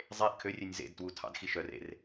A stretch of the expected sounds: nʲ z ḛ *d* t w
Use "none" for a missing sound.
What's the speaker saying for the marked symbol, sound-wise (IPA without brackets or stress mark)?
d